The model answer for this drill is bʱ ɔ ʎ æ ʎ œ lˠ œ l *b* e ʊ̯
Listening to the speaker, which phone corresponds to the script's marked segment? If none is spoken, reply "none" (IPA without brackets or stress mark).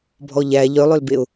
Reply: b